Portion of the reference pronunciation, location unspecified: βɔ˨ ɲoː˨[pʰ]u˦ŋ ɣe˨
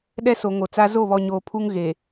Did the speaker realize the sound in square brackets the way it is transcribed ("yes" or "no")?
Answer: yes